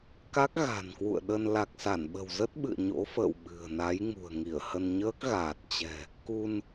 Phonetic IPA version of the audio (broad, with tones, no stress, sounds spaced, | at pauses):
k a˦˥ k̚ ɣ a̤˨˩ n k w ṵ˧˨ ə̯ ɗ ə˧ n l a˨˩ k̚ s a˧˩ n ɓ ə̤˨˩ w z ə˦˥ t̚ ɓ ɨ̰˧˨ ə̯ ɲ o̰˧˥ f ə̰ː˧˨ w ɓ ɨ̤˨˩ ə̯ n a˨˦ j ŋ ṳ˨˩ ə̯ ŋ i˧˩ ə̯ h ə˧ n ɲ əː˦˥ k̚ ɣ aː˨˩ t̚ t͡ɕ ɛ̤˨˩ | k u˧ n